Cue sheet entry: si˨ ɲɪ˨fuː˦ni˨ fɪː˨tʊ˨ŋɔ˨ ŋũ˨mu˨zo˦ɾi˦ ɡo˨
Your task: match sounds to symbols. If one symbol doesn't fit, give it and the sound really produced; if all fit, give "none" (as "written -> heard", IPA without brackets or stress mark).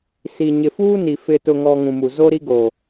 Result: ɪː˨ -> ɪ˨